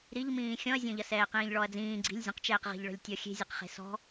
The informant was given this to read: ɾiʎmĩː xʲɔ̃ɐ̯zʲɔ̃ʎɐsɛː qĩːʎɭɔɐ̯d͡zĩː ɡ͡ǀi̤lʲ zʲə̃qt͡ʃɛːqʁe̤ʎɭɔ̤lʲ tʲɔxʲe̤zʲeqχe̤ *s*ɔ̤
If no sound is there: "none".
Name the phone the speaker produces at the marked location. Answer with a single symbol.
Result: s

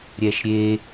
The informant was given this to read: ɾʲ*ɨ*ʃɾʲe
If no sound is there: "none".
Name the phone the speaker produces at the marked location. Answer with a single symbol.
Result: ɛ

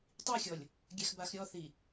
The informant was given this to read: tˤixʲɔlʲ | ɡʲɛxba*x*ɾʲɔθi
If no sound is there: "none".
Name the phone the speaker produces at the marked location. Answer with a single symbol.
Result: x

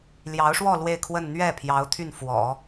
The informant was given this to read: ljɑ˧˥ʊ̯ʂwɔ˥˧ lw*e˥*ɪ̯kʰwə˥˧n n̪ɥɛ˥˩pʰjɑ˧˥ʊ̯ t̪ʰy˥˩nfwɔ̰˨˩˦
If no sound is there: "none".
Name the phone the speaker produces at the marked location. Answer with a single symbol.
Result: e˥˧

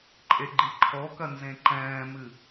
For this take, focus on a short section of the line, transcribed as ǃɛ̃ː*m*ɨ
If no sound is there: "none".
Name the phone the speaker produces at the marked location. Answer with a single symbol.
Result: m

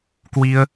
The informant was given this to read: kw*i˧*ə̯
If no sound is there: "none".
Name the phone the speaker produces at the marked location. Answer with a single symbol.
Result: i˧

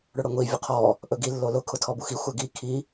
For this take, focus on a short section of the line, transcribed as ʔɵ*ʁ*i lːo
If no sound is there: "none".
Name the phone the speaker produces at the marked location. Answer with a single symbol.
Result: ɡ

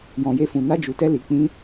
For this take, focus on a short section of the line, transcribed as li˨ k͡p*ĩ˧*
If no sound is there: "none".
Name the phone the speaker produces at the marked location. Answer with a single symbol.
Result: ĩ˧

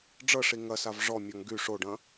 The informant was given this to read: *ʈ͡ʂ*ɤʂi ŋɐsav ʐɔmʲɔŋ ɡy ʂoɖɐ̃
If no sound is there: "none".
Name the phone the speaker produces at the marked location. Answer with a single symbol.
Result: ɖ͡ʐ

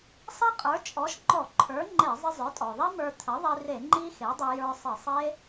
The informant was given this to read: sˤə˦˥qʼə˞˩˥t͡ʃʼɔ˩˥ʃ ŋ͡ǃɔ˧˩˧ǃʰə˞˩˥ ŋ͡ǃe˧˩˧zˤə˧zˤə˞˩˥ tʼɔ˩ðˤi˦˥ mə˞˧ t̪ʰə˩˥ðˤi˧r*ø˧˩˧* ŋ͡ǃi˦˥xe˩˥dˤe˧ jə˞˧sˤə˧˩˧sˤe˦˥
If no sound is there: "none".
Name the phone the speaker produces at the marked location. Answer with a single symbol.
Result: e˧˩˧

